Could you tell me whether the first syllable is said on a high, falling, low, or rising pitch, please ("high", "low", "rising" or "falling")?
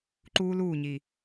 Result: high